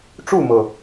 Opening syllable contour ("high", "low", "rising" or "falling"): falling